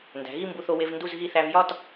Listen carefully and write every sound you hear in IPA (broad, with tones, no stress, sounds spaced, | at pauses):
n d æ̤˩˧ ɣ i˥˧ m b u˧ θ o˧ w e˧ v n d u˥˧ z ɣ i˥˧ θ æ˧ v j ɒ˥˧ t